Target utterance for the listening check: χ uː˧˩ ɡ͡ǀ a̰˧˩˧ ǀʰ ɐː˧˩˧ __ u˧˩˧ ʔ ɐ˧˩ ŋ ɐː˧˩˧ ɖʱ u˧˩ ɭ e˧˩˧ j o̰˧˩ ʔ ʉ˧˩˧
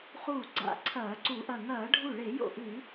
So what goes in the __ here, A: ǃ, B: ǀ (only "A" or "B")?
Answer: B